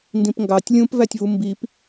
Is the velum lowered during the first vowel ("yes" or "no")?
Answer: yes